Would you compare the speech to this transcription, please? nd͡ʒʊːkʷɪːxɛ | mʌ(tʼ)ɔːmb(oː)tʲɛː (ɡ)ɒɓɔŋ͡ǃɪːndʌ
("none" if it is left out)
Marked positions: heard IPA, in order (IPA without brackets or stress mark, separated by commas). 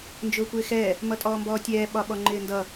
tʼ, ɔː, ɓ